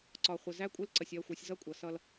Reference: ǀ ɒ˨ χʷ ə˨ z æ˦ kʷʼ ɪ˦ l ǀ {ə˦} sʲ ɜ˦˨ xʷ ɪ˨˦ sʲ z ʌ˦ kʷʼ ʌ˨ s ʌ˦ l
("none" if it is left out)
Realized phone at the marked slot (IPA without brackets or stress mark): ə˨